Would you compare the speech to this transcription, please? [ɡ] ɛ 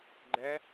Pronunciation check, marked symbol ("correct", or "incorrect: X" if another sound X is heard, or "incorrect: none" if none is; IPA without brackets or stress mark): incorrect: ɡ͡ǃ